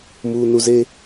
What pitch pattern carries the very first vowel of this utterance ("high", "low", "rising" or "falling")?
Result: low